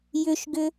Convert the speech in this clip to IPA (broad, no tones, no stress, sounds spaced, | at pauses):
j ʏ ʃ ɡ ʏ